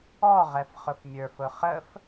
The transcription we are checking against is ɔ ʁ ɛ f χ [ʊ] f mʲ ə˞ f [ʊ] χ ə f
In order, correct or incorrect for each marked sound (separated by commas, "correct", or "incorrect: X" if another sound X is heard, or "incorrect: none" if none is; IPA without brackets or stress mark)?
correct, correct